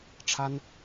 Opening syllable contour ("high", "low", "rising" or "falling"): high